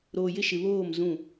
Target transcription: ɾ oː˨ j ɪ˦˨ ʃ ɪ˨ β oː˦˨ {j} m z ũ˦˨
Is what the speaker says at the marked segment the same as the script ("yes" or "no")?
no